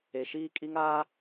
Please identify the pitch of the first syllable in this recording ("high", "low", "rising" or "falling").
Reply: low